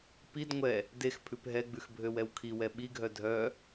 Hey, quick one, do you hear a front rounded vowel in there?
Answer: yes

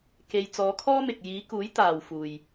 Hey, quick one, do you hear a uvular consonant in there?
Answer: no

